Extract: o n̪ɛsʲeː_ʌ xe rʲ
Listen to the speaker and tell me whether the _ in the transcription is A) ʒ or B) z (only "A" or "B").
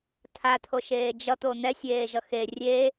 A